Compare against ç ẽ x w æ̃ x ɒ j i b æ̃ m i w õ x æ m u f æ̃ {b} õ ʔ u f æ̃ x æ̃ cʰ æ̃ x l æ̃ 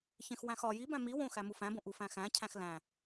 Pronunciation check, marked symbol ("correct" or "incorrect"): correct